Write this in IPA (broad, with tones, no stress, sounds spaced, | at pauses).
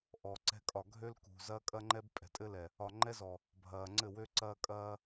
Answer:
ʔ ɔ˨ ǀ ɛ̤˦ kʼ ɒ˨ ɡʱ ø˦ l k ṳ˨ z ɐ˦ kʼ ɐ˦ ŋ͡ǃ ɛ˦ b pʼ ɛ̤˨ tʼ ɘ˦ l ɛ˨ | ɒ˨ ŋ͡ǃ ɛ˦ z ɔ˨ | bʱ ɐː˨ ŋ͡ǀ ɘ˦˨ w ø˦ ǀ ɐː˦ kʼ ɐː˦